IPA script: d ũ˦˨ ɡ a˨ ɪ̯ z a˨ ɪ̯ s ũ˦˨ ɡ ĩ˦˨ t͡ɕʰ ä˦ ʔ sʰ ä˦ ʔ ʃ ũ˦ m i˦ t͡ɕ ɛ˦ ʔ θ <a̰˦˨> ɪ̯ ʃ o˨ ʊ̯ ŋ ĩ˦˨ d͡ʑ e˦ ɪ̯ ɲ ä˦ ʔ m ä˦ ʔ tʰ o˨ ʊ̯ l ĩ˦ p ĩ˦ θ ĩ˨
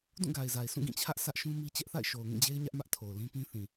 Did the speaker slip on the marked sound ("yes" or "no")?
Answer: no